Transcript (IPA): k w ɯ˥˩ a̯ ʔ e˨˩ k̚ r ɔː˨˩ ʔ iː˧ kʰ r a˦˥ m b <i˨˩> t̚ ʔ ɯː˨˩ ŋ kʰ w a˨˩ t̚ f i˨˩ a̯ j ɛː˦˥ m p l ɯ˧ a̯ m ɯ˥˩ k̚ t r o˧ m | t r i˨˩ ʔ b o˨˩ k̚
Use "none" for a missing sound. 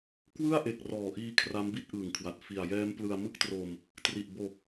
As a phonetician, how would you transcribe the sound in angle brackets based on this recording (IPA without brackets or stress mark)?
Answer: i˥˩